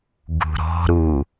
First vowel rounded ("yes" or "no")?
yes